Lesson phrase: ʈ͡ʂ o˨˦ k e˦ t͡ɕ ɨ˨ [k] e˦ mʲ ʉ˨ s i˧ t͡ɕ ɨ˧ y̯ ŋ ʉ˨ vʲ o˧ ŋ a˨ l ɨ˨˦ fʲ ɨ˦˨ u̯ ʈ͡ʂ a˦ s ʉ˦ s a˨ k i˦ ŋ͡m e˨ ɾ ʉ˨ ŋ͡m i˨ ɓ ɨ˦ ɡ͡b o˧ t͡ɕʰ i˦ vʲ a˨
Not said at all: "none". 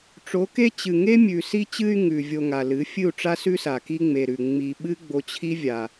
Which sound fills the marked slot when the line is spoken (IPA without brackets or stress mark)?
ŋ